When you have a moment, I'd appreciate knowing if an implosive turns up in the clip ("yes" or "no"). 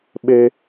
yes